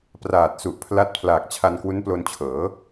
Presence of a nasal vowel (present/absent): absent